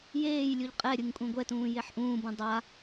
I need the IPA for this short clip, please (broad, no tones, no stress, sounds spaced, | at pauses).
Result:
j eː j lʲ u ʎ qʼ ɛ ɾʲ ɯ ŋ kʷʼ ẽ ɡʷ ɛ t ũː j e ħ ʔ ũː b ũ dˤ a